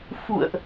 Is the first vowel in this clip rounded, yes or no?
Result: yes